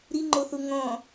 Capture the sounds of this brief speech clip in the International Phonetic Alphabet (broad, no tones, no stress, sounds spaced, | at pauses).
ɾ i ŋ͡ǃ o θ u ŋ ɔ̃